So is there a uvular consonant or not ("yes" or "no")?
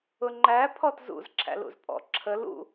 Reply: no